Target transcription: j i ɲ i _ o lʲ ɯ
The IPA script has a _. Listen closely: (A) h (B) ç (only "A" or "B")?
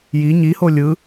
A